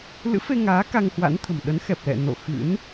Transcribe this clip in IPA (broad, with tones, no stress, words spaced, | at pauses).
lɨ̰˧˥fe˧ŋaː˨˦ ka˧ŋhwa̰˧˥nt̪ʰə̤˨˩m ɗə˨˦nxɛ˨˩p̚lɛ̰˧˨ no̰˧˨ xɨ̰˧˥n